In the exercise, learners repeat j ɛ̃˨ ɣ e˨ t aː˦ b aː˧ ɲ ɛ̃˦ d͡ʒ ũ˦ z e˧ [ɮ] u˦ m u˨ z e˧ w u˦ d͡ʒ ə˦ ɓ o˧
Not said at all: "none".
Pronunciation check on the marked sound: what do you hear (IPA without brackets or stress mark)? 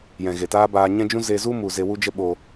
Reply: z